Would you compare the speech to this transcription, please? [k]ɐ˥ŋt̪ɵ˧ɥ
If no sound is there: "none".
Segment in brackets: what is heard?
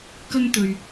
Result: k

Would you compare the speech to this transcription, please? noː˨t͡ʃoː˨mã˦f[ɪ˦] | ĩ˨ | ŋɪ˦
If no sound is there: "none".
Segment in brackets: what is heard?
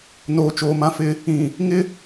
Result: ɪ˦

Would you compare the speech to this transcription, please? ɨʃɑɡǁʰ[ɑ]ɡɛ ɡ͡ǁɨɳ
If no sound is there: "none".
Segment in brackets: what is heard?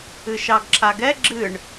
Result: a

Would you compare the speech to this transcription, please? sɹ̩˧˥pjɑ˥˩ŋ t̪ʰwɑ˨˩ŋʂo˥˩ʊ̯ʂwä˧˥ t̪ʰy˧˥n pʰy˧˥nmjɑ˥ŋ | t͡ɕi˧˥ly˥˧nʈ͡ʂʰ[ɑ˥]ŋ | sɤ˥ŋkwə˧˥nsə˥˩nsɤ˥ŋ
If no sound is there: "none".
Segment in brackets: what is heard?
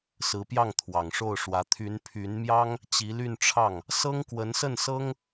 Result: ɑ˥˩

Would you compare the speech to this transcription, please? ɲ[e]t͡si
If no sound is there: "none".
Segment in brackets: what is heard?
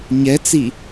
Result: ɛ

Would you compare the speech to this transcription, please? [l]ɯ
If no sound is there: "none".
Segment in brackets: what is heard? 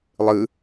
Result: lˠ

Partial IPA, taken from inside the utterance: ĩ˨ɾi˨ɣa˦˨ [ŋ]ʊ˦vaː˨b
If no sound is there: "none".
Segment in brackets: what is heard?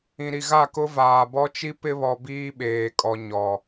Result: k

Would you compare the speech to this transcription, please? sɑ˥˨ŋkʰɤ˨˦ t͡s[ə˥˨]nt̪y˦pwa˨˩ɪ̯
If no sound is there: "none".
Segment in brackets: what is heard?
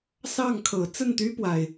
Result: ə˥˨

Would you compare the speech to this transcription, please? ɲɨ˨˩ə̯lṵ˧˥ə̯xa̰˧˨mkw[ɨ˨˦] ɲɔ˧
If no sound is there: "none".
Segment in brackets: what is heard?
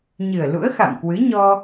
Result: ɨ˨˦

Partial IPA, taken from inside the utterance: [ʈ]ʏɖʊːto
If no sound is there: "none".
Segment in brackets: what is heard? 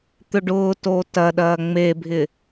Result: t̪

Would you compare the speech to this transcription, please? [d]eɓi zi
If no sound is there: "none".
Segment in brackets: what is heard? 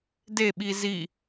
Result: d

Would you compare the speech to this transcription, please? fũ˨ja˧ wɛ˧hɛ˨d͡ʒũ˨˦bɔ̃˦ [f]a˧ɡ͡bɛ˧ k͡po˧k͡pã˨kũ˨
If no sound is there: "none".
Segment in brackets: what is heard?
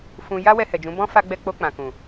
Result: f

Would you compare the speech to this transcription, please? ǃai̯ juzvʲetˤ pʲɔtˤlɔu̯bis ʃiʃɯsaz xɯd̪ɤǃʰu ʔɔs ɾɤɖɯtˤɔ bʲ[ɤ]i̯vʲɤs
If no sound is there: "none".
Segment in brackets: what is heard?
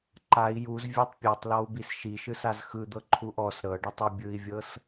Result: ɯ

